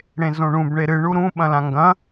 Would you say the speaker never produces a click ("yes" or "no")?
yes